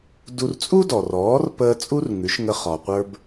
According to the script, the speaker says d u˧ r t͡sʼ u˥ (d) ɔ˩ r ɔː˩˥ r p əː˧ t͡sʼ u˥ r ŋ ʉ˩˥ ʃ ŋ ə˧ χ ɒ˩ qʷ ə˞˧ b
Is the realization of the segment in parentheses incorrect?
no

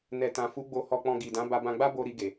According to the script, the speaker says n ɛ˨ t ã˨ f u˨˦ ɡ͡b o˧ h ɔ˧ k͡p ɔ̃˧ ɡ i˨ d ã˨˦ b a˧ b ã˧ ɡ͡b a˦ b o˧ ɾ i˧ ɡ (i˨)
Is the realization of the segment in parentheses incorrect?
yes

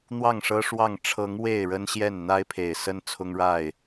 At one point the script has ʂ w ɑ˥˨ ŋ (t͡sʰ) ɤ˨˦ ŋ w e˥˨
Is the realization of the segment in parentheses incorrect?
yes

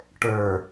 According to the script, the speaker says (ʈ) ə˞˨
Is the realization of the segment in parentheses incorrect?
no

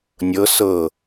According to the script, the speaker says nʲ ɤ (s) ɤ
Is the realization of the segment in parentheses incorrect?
no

